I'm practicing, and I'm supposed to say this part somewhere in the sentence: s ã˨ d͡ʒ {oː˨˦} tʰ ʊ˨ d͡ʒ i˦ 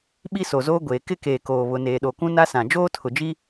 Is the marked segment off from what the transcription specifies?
yes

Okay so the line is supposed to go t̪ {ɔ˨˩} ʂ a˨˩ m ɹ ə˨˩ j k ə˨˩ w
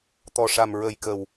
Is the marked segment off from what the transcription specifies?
no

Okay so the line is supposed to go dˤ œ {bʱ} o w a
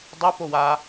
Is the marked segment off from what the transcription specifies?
yes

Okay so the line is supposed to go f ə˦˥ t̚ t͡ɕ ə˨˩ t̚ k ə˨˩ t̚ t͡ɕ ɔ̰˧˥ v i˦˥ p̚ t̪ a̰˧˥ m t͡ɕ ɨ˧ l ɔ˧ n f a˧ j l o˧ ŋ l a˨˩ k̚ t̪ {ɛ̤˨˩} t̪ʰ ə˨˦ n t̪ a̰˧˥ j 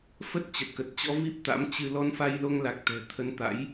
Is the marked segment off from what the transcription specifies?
no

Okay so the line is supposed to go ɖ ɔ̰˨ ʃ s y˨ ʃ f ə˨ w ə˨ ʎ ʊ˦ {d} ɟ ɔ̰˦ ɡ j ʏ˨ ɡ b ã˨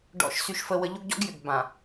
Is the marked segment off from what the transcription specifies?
yes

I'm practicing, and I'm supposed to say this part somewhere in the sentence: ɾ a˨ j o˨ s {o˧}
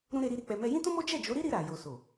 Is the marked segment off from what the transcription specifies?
yes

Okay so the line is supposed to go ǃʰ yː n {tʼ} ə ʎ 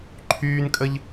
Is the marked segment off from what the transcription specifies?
yes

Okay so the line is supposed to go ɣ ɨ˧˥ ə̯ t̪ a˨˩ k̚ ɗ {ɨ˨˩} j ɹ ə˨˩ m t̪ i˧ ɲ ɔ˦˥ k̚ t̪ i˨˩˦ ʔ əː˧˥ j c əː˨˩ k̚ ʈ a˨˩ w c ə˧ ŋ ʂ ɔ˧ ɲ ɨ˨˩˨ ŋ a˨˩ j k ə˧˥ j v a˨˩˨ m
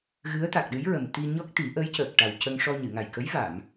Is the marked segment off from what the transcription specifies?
yes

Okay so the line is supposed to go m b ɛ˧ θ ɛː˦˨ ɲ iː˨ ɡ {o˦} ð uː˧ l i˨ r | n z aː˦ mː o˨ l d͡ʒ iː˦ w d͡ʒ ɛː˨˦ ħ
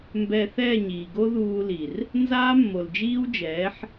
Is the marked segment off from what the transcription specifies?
no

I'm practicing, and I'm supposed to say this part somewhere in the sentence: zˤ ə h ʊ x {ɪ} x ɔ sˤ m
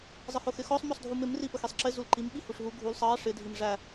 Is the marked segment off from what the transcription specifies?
no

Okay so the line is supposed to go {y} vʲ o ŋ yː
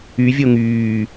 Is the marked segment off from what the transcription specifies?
no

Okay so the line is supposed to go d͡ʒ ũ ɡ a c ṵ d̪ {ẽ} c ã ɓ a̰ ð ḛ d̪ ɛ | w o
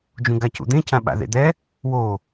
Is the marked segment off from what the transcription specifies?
no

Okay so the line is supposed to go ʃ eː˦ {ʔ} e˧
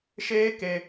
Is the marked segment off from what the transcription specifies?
yes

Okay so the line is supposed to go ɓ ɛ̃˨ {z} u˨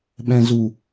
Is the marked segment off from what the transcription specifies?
no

